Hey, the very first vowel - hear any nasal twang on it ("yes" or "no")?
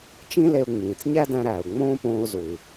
yes